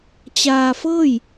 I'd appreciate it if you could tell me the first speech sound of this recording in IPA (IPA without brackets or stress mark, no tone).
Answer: t͡ɕ